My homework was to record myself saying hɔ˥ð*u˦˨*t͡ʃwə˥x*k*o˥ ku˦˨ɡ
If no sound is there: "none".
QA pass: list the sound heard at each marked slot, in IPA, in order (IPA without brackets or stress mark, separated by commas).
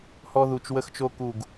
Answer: u˦˨, t͡ʃ